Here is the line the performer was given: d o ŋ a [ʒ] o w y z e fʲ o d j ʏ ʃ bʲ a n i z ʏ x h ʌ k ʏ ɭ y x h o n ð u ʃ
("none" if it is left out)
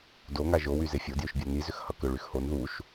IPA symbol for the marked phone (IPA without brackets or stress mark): ʒ